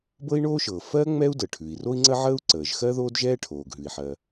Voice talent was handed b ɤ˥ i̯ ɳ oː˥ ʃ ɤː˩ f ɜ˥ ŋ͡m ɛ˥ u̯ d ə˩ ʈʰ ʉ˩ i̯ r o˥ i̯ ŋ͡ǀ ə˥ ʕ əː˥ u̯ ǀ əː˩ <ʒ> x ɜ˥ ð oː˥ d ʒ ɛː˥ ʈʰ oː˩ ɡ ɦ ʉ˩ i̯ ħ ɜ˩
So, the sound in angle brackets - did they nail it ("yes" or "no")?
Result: yes